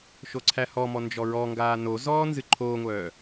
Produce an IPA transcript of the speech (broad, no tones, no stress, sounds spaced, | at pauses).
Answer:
ʃ o ǀʰ æ h ɔ m ɔ n d͡ʒ ɔ ɹ ɔ ŋ ɡ aː n o z ɔː n z ɨ ǃʰ oː ŋʷ œː